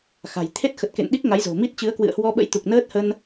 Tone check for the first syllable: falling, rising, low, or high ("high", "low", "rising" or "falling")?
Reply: low